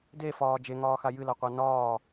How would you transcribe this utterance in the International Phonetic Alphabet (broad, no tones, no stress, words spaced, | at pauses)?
defɒː d͡ʒeŋɒːxa jɨlaqʷa nɒː